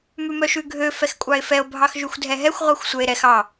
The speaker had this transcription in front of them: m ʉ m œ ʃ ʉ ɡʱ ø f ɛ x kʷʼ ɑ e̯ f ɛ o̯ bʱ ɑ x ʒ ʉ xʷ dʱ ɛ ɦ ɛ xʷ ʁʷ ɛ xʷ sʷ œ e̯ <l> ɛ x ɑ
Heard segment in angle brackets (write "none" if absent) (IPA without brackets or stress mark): ɾ